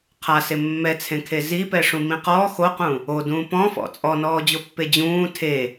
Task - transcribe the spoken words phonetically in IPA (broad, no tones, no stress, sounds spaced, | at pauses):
qʰ a s e mː ɛ t͡sʰ ẽ kʰ e z i p ɛ ʂ ũ m ĩ q ɔ x o q ũ | o d ũː p ɔ̃ f ɔ̰ t͡sʼ ɔ n ɔː d͡ʑ o pː e d͡ʑ ũː tʰ e